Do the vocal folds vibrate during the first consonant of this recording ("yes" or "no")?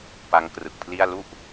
no